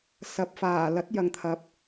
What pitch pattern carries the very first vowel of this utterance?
rising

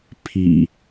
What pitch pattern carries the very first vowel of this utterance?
low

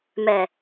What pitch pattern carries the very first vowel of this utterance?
low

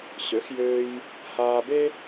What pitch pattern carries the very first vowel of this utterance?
rising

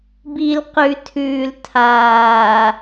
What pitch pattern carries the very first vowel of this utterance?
low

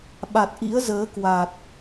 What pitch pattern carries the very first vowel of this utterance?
low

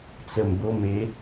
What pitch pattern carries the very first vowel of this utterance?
low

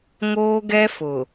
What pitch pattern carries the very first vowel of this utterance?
high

